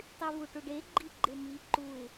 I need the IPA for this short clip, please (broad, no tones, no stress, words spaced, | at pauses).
tˤyvuʈuɖe ɡ͡ǃiɡ͡ǃemi ǃuɪ̯